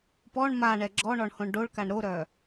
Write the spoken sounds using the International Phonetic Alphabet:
p ɔ ɳ m a ɳ ɛ ɡ͡ǁ ɔ ɳ ɔ ɳ h õ ɳ ɖ o ɭ k a ɳ ɾ o ɾ œ

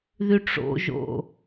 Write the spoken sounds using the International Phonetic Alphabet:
ð y ʈ͡ʂ o̰ ʒ o̰

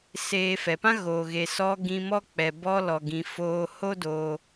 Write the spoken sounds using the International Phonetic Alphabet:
s eː˧ f ɛ˨ p ã˦ ɣ oː˨ ɣ e˨ s ɔ˧ ɡ ĩ˧ m ɔ˦ k͡p ɛ˨ b ɔ˧ l ɔ˨ ɡ ĩ˨ f oː˨ h o˦ d oː˧

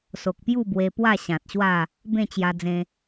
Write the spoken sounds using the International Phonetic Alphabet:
s o˨ k̚ p j u˥˧ b w e˧ p w a˥˧ ɕ ã˨ t̚ ɕ w a˥˧ | b ẽ˥˧ t͡ɕ j a˧ d͡z ẽ˧

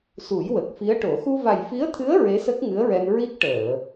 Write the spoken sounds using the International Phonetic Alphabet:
s u˨˩˦ j w ə˨˩ k̚ f i˧˥ ə̯ ʈ o˨˩˦ x u˧ v a˨˩ j f i˧˥ ə̯ t̪ʰ ɨ˧˥ ə̯ ɹ e˧˥ s ə˦˥ k̚ ŋ ɨ˧˥ ə̯ ɹ ɛ˧ n ɹ i˦˥ k̚ ʈ əː˨˩˨

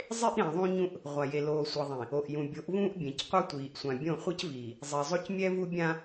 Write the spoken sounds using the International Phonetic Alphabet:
zˤ e˦ ʔ ɾ ĩ˨ ðˤ ũ˦ ɲ ũ˦ ʔ | ʁʷ a˨ j e˨ l oː˨ sʷ ʌ˨ ðˤ ĩ˨ | o˨ ʔ j ũ˨ bʲ o˨˦ ʔ v ũː˦ ʔ bʲ ẽ˨ c qʷ ʌ˦ tʷ iː˨ ʔ sʷ ã˨ bʲ õ˦˨ χʷ ʌ˦ c v iː˨ | zˤ i˨ zˤ o˦ c mʲ ɛ˦ v u˦ bʲ ã˦

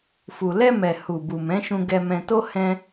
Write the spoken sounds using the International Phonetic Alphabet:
f u˨ l ɛ˧ m ɛ˨ h u˨ b u˨ m ɛ̃˨˦ ʃ ũ˧ ɡ ɛ˧ m ɛ̃˧ t o˦ h ɛ̃˧

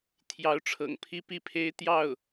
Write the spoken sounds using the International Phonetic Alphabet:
t̪ʰ j ɑ˧˥ ʊ̯ ʈ͡ʂʰ ɤ̰˨˩ ŋ pʰ i˥˧ p i˥˩ pʰ e˥ ɪ̯ t̪ j ɑ˥˩ ʊ̯

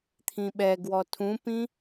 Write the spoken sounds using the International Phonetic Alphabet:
t̪ʰ ĩ ɓ ɛ ɡ w ɔ tʰ ũ p ĩ

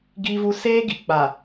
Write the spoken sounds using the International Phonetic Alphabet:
ɡ iː˦ v u˦ s eː˦ ɡ i˨ k͡p a˨

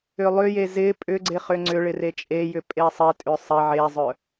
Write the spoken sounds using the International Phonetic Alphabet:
ʏ lˠ ʏ j e z ɪ pʼ ʏ ɡ͡ǀ ɪ χ ʏ ŋ͡ǀ ʏ ɭ ɪ r e t͡ʃʼ e j ʏ pʼ e sˤ ɪ tʼ ʏ sˤ ɪ ʕ e zˤ œ

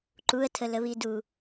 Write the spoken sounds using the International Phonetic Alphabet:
ǃ u ə̯ tʰ ə l ə β i d u

